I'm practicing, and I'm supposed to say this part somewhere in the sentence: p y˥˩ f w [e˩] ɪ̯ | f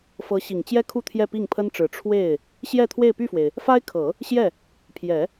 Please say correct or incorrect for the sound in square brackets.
correct